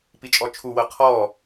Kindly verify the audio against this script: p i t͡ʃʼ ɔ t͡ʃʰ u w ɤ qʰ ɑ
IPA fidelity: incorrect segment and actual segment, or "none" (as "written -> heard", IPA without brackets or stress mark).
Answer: ɑ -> ɔ